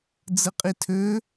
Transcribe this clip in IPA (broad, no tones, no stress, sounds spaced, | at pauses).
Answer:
d͡z ɯ qʼ i tʰ ø